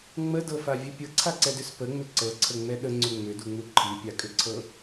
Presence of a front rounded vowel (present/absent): present